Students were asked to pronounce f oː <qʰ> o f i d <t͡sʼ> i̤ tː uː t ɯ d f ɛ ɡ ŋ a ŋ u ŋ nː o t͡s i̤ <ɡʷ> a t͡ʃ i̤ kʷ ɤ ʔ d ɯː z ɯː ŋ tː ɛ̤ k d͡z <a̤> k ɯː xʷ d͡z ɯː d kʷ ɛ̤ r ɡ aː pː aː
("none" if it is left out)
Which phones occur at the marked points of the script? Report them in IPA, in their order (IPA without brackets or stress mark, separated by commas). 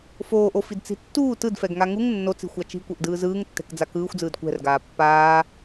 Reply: ʔ, t͡s, xʷ, a